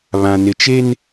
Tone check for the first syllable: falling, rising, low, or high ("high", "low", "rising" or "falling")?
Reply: low